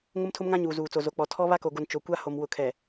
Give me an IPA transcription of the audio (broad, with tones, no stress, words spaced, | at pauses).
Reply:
ŋʊ˦mtʰʊ˦mŋã˦ ɲuː˨zuː˨t͡so˨ zo˨k͡pɔ˨ tʰɔ˦ βa˦ko˨ɡo˨n t͡ʃo˨kʷa˦ ho˨m wʊ˨kʰɛ˨